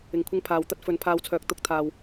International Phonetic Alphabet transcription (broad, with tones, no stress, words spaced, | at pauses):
ɪ˨ŋkʷʰɪ˧ŋpʰaː˨w t̪ɐ˥t̚fɵ˨˥n pʰaː˧wt͡sʰœː˨˥k̚ t̪ʊ˨˥k̚t̪ʰaː˨w